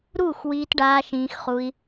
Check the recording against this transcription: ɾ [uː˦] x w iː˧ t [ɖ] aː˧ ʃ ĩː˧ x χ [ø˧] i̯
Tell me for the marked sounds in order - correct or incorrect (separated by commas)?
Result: incorrect, correct, incorrect